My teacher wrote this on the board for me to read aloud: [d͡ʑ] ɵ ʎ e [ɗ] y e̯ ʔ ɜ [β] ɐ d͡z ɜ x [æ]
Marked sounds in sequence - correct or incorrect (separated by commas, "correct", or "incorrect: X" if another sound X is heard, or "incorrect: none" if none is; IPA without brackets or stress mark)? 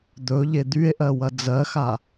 incorrect: d̪, incorrect: d̪, incorrect: w, incorrect: a